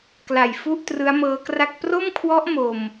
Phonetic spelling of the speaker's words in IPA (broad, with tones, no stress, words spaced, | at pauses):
kla˨˩jfu˥˩ʔ trɯ˦˥a̯mɤː˦˥kra˥˩k̚ pro˥˩mkʰwɔ˦˥ʔ mo˧m